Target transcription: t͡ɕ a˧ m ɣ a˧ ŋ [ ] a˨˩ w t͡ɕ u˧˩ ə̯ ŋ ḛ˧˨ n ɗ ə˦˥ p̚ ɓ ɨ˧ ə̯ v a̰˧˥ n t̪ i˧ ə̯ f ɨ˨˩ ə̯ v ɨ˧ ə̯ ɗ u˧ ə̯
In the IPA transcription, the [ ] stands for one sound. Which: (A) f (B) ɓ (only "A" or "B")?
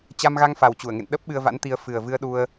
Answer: A